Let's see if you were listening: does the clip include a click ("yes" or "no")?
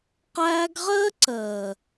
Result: yes